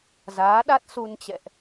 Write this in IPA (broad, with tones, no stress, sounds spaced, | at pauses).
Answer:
z aː˨˦ ɗ a˦˥ t̚ s u˧ n t͡ɕ ɛ̰˧˨ ʔ